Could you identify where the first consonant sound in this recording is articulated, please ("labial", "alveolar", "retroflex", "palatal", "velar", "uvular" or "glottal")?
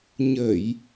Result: palatal